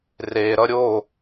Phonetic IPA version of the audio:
r e ɾ ʌ ɾʲ o

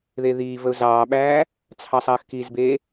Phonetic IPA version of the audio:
ð e ð iː v ə ʊ̯ z ɑː ɓ æː | t͡sʰ ɑ sˤ ɐː x k i z b eː

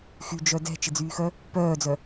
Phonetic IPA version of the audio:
x y d͡ʒ œ d ɛ̤ t͡ʃ ɪ d͡z yː x œ | p œː d͡z œ

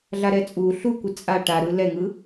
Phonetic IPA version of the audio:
ɮ a ɾ ɛ t͡sʼ u ɬ u kʷ ɯ t͡sʼ a ʈ a ɾ ɯ l ɛ ŋ ɯ

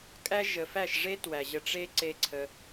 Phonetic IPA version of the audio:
kʼ æ˦ ʒ ə˨ f æ˦˨ ʃ ʐ e˦ t w æ˨ ʑ ə˧ ʈ͡ʂ e˦ ǀ e˦ ǀʰ ə˧

